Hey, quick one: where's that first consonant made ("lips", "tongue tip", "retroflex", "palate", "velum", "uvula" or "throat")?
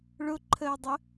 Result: retroflex